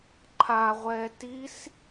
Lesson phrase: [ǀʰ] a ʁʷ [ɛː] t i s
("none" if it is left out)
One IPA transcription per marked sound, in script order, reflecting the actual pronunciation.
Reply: ǃʰ, ɛː

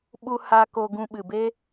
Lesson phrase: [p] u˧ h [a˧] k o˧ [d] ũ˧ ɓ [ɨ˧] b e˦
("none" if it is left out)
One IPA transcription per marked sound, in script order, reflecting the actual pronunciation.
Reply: ɓ, a˧, ɡ, ɨ˨

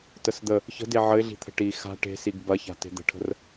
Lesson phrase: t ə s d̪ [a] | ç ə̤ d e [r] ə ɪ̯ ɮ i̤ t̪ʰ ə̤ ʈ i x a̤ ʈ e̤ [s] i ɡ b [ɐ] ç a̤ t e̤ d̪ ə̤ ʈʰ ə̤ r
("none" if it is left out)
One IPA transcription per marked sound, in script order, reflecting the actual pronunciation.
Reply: ə, ʕ, s, ɐ

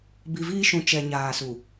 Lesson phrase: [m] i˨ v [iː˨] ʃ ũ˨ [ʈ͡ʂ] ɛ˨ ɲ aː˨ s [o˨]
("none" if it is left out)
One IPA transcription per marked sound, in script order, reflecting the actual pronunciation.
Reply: b, iː˦, t͡ʃ, u˨

